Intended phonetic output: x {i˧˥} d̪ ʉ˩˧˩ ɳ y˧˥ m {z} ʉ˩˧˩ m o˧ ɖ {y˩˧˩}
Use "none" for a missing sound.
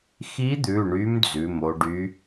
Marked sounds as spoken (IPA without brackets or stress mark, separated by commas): i˧˥, d͡z, y˧˥